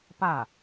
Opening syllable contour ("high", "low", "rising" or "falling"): falling